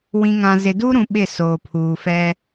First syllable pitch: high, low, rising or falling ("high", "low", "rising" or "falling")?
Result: low